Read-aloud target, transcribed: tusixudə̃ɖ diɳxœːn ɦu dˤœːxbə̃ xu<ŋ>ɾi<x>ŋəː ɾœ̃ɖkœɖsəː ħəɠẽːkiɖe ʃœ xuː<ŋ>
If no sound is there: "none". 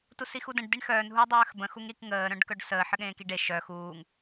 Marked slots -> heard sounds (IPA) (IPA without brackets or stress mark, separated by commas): ŋ, k, ŋ